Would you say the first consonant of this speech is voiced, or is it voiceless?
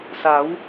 voiceless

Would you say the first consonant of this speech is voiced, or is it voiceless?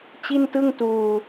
voiceless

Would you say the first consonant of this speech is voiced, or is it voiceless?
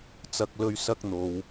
voiceless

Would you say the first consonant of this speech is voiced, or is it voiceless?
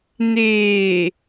voiced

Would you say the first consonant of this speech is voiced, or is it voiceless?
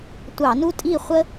voiceless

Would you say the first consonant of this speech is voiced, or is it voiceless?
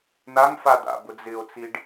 voiced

